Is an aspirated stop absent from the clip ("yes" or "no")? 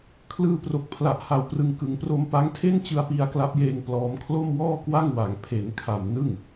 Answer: no